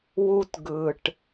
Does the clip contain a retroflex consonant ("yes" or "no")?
yes